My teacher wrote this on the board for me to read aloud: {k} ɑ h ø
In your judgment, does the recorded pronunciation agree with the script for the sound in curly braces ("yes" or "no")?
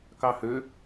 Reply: yes